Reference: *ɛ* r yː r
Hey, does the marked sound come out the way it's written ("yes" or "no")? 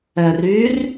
yes